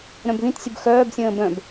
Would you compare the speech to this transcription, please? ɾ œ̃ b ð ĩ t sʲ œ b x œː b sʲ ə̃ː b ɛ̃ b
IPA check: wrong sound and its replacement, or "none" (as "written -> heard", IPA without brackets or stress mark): ɛ̃ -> œ̃